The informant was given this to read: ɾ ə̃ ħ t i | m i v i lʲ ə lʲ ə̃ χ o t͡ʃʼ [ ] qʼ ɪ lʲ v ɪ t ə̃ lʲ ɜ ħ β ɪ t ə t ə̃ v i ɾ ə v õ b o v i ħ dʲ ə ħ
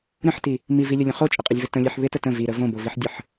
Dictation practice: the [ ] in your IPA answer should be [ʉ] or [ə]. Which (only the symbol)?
ə